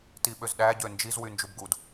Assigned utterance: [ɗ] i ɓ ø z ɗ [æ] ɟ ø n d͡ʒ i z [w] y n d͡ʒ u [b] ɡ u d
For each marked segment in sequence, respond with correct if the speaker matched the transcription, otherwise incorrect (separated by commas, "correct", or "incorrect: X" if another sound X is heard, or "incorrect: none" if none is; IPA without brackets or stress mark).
incorrect: t, correct, correct, correct